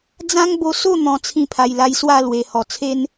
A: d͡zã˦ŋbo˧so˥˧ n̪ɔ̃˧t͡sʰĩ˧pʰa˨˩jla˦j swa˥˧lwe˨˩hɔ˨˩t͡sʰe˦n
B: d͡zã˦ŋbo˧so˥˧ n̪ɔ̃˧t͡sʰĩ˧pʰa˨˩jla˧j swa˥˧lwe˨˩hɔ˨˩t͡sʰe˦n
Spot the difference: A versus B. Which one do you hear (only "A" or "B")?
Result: B